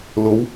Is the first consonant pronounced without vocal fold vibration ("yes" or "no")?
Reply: no